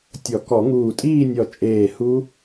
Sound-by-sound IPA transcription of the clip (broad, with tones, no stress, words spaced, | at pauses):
tʲɔ˨˩˦kɔ˨˩˦ŋuː˧˩ tʼiː˥˧nʲɔ˧˩ t͡ʃʼeː˧˩ hu˦˥